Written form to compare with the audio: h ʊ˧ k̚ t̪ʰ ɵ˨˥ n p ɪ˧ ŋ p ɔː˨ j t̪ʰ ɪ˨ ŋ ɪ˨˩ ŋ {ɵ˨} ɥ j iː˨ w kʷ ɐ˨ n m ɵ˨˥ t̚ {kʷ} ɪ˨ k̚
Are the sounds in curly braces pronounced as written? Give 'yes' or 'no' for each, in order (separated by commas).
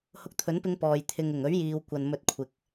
no, no